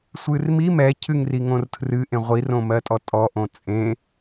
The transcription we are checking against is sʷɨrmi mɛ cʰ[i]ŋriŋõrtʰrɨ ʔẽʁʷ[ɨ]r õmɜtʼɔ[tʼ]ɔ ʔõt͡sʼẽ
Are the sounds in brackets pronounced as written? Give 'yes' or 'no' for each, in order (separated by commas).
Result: no, no, yes